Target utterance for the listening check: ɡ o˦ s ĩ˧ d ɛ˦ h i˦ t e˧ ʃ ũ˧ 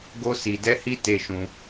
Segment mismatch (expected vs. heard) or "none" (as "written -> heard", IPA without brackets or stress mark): ĩ˧ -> i˧